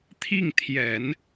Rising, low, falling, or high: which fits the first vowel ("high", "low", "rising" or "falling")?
falling